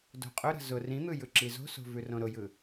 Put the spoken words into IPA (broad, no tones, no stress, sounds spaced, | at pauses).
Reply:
d o̤ qʼ ʊ ɾ ə̤ z ʊ r ĩ n̪ ɯ j ɯ ǁ i z o̤ s o̤ v ʉ r õ ɾ ʊ j ɯ